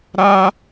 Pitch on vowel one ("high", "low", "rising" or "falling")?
high